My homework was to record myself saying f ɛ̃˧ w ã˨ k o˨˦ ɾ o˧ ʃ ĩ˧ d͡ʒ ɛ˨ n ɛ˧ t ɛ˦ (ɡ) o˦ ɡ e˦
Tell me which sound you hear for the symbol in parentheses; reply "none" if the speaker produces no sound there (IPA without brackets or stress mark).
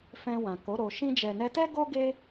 ɡ